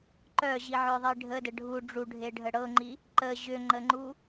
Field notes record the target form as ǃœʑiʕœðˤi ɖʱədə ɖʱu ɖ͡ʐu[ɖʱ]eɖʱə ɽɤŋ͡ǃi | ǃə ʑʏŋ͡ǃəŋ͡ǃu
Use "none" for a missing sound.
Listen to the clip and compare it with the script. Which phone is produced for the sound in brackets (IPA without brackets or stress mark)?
ɖʱ